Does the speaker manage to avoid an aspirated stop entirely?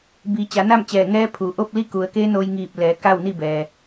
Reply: no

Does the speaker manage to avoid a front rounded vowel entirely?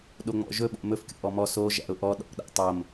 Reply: yes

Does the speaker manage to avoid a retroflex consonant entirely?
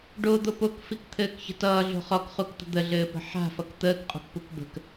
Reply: no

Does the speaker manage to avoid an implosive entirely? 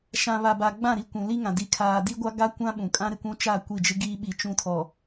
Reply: no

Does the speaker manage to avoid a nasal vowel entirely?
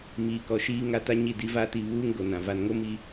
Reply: no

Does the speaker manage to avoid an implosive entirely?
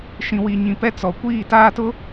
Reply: yes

